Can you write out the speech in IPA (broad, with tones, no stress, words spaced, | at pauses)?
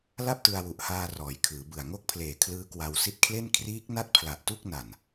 la˥˩p̚tɯ˧a̯wu˨˩ʔhaː˧ rɔː˩˦jkʰɯː˩˦bɯ˨˩a̯ ŋo˥˩k̚pʰleː˨˩ kʰlɯː˦˥kwa˧w si˦˥t̚kʰle˥˩n kʰriː˦˥k̚ na˥˩t̚pʰla˨˩ʔtu˥˩k̚ na˨˩n